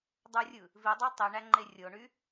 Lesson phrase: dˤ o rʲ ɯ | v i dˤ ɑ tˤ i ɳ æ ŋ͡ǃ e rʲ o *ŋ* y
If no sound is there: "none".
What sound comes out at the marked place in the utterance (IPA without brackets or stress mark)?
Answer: ɳ